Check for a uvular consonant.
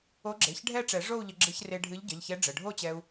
absent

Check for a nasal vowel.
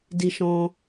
present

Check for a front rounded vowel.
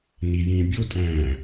absent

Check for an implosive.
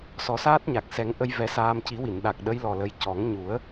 present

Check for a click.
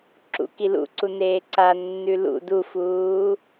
present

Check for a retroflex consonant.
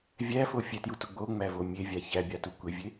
absent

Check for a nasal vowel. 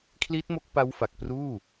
absent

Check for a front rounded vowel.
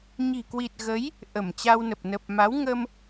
absent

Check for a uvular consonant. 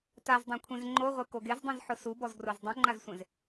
present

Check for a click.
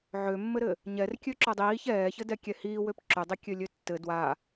present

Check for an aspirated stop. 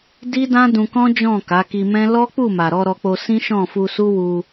absent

